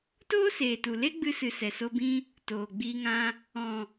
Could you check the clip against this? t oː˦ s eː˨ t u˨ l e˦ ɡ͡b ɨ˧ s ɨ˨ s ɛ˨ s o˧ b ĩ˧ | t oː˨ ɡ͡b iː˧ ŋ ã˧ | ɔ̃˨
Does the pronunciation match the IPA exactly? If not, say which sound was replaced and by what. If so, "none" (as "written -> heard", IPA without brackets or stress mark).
none